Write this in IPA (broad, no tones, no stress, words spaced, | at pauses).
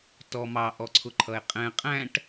tɔ mɑʔɔǀʰʊ ǃʰʌe̯qʼɛ̃ qʼæ̃ʈ